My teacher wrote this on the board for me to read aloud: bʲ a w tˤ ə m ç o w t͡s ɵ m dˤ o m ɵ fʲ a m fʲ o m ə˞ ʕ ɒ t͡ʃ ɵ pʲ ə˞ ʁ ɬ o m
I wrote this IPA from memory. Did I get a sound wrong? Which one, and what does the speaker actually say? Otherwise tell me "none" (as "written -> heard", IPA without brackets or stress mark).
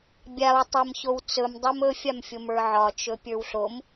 ʁ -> w